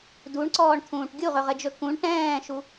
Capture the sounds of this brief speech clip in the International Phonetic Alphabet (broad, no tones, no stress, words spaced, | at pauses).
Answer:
duɳǀɔːɳt̪ʰũːʈ ɡʲuʁɵʁɘd͡ʒɵ kũɳ ʈɛ̃ːʃu